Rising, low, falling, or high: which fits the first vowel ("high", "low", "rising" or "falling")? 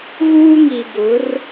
high